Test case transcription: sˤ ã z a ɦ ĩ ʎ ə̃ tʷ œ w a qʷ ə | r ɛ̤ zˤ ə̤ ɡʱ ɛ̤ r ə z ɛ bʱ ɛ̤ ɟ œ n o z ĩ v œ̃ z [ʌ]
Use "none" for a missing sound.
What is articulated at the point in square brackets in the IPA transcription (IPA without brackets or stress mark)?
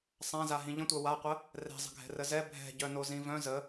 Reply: ə